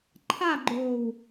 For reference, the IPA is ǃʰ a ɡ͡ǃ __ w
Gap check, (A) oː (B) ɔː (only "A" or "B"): A